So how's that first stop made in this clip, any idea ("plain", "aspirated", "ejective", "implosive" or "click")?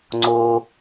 click